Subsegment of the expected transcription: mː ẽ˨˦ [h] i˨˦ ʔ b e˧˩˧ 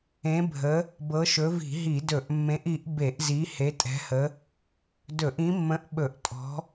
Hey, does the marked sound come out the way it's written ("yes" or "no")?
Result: no